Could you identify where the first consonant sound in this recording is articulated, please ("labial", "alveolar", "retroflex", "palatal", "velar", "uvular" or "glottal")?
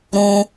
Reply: alveolar